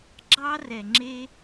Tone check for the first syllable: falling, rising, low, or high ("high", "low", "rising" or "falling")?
high